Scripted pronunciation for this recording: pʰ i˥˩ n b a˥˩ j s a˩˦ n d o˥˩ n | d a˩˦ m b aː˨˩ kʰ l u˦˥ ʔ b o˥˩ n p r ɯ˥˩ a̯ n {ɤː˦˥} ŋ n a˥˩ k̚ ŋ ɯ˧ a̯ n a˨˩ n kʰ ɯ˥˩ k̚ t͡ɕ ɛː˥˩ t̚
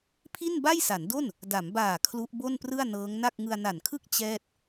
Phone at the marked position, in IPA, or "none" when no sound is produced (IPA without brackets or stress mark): ɤː˦˥